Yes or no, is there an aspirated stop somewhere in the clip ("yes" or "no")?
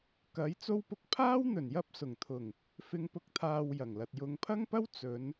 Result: yes